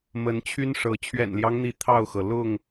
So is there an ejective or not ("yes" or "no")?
no